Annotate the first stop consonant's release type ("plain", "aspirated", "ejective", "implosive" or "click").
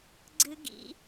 click